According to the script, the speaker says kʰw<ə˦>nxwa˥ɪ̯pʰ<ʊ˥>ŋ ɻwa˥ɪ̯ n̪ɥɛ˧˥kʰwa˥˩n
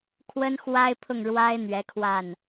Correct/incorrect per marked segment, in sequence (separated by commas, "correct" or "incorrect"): incorrect, incorrect